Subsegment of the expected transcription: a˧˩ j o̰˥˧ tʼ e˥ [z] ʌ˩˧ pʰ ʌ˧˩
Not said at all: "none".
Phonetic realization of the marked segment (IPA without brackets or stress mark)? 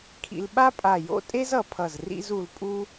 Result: z